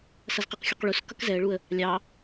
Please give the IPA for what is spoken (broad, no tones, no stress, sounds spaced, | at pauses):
s ʌ z q ɪ q xʲ u q ɭ u s k ʌ k z ɛ ə̯ ɭ u ə̯ | lʲ ɑ